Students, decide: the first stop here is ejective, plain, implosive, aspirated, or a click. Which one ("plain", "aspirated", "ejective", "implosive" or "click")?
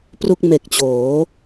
plain